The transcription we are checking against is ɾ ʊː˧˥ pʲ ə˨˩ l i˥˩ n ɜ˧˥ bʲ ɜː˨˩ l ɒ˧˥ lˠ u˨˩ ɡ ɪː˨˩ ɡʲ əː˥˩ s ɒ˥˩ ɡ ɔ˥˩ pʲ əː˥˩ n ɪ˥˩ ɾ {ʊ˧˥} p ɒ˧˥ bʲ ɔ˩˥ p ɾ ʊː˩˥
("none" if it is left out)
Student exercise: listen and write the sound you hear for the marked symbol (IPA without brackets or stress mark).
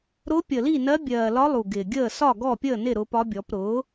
ʊ˧˥